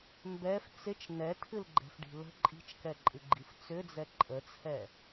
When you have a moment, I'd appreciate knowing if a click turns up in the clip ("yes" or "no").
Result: yes